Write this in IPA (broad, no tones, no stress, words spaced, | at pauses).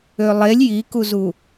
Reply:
ølˠelʲ jikuzu